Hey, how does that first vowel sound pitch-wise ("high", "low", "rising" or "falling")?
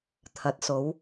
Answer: rising